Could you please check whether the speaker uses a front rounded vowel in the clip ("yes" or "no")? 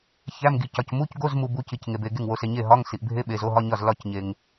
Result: no